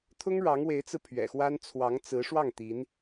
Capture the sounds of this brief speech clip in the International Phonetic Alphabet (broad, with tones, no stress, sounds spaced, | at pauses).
t̪ʰ ʊ˥ ŋ ɻ ɑ˧˥ ŋ w e˧˥ ɪ̯ t͡s ɹ̩˧ pʰ ɥ ɛ̰˨˩ x w a˥ n t͡sʰ w ɑ˧˥ ŋ t͡s ɹ̩˧˥ ʂ w ɑ˥˩ ŋ t̪ i˧˥ n